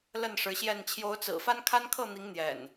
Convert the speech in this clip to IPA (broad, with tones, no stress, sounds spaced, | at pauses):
l ə˥˨ n ʂ ɻ̩˨˦ ɕ j ɛ˥˨ n t͡ɕʰ j o˨˦ ʊ̯ t͡s ɹ̩˨˩ f a˦ n kʰ a˦ n kʰ ɤ˥˨ n̪ i˨˦ ŋ n̪ j ɛ̰˨˩ n